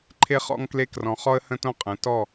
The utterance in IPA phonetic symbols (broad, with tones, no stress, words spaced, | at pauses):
ǃʰe˦χɔ̰˦ŋkle˦ krɔ̃˨χɔ˦ə̯hə̃˦tõ˦ qʼə̃˨˦tɔ˦˨